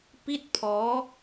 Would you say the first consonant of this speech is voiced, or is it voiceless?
voiceless